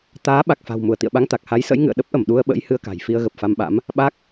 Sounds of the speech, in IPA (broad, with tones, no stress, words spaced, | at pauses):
t̪aː˨˦ ɓa˨˩k̚fa̤˨˩w mu˧˩ə̯t̪ḭ˧˨ə̯ɓa˨˦ŋ t̪a˨˩k̚ha˨˦j sə̰˧˥jŋɨ̰˧˨ə̯ɗə˦˥p̚ʔə˧˩m ɗu˧ə̯ɓə̰˧˥j hɨ˧ə̯ka̤˨˩j fi˧ə̯ɣə˨˩p̚fa˧mɓa̰˧˥m | ɓa˦˥k̚